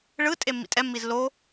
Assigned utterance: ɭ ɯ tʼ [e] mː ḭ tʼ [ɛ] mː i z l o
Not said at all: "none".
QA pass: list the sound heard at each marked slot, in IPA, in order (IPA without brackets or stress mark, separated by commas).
e, ɛ